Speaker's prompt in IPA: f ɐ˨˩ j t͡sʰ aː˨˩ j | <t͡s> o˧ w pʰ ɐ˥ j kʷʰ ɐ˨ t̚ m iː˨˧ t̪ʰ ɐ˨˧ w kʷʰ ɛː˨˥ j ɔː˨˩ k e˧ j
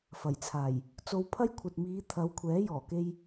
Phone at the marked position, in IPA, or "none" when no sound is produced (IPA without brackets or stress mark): t͡s